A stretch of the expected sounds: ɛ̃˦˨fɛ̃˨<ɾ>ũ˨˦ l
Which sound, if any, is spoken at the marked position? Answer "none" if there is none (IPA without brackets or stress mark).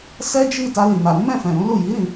ɾ